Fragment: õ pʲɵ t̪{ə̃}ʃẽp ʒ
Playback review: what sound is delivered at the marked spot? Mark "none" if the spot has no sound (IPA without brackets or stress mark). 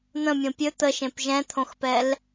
ə